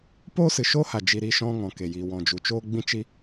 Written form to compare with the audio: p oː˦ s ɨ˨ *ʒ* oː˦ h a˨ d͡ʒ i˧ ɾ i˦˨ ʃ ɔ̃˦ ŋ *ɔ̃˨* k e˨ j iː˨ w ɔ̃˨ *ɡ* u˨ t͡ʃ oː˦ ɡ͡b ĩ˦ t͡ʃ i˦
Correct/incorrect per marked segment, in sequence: incorrect, correct, incorrect

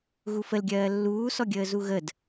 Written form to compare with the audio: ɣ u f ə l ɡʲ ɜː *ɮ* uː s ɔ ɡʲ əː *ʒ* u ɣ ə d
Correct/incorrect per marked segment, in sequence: incorrect, incorrect

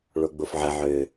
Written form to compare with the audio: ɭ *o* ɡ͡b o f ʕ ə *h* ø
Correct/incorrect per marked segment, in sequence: correct, incorrect

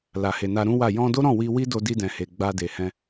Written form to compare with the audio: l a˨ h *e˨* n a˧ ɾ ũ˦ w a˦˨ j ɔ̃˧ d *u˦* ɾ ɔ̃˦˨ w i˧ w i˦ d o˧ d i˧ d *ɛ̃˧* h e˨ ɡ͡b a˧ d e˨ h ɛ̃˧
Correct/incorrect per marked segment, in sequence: correct, incorrect, incorrect

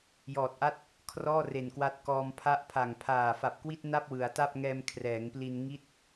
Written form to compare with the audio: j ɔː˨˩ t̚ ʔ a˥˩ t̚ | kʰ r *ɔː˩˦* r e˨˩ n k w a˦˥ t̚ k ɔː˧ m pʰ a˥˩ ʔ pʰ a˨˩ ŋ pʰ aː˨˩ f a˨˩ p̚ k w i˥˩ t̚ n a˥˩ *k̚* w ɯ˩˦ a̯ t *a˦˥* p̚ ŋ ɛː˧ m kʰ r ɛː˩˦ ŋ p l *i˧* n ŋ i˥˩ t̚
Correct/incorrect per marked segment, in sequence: incorrect, incorrect, incorrect, correct

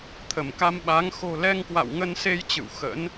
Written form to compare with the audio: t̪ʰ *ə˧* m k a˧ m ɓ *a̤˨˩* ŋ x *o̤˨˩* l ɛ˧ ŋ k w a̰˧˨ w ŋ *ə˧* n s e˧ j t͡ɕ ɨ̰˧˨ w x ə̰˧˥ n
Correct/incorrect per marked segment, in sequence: incorrect, incorrect, correct, correct

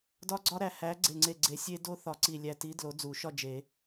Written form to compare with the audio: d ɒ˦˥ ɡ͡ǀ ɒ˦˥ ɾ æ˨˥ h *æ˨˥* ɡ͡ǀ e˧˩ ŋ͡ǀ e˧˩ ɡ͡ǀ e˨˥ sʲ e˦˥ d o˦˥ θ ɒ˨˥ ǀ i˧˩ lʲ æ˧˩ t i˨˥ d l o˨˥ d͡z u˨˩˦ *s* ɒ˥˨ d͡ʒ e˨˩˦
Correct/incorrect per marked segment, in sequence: correct, incorrect

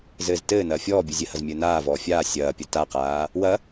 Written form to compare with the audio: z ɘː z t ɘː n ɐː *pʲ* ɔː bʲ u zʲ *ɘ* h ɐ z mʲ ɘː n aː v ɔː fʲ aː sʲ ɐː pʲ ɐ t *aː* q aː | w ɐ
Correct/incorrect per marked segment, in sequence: incorrect, correct, incorrect

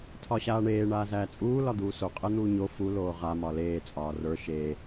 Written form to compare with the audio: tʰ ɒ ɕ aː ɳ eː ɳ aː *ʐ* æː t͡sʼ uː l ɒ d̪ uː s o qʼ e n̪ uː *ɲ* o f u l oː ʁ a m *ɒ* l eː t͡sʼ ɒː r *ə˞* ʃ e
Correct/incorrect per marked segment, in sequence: incorrect, correct, correct, correct

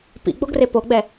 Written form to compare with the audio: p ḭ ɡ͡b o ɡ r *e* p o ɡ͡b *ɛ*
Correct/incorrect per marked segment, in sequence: correct, correct

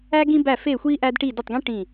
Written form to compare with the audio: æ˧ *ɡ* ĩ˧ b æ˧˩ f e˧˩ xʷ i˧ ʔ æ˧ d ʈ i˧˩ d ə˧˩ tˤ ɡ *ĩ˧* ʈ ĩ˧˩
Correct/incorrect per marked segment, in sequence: correct, correct

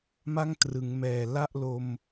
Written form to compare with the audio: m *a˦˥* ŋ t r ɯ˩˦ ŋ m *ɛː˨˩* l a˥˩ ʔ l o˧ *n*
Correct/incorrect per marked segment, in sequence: incorrect, correct, incorrect

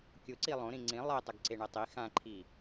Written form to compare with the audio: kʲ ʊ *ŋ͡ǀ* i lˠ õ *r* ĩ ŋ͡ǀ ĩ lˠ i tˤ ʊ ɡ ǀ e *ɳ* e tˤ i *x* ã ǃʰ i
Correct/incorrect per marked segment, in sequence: incorrect, incorrect, correct, correct

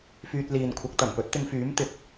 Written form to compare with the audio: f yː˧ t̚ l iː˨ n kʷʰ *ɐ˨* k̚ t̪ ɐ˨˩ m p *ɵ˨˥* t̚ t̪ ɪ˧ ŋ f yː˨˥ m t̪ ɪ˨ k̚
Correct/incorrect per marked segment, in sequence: incorrect, correct

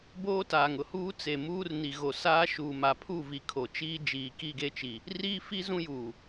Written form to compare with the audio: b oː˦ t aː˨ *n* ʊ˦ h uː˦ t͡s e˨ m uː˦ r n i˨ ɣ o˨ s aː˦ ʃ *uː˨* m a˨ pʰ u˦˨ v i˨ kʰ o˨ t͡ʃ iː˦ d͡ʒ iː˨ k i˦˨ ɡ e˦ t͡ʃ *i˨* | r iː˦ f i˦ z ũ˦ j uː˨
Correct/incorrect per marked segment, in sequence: incorrect, correct, correct

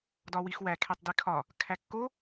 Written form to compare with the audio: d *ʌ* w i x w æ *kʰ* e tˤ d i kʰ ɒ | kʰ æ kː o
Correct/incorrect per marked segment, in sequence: incorrect, correct

